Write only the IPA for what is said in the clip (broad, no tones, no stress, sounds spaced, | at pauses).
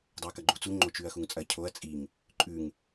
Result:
dˤ ɵ ɐ̯ k ɐ ɡ͡ǃ u t͡s u ŋ͡ǃ o t͡ʃ ʉ ɐ̯ x u ŋ t͡sʼ ɐ cʰ o ɐ̯ t͡sʼ i ŋ | ǃʼ ʉ ŋ